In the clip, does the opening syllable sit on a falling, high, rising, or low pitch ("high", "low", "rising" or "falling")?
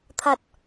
low